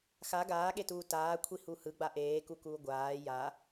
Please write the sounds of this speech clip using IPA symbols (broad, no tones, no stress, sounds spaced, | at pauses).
x a ɡ aː ɠ e t uː t aː kʷʰ i h u h ɯ ɡ͡b a ʔ eː k u k uː ɡʷ aː j a